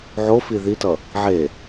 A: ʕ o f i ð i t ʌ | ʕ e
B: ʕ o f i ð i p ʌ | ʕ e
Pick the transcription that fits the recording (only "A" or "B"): A